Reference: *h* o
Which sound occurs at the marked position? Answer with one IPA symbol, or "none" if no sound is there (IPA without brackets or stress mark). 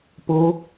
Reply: p